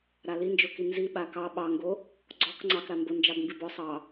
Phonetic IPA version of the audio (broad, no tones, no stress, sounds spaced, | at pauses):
ɾ a l i n d͡ʒ o k i n z i ɓ a k ɑ ɓ ɑ ŋ ɡ o | ɡ͡ǀ ɔ k ŋ͡ǀ ɑ k ɾ a m b o n d͡ʒ ɑ b m b i b ɔ sˤ ɑ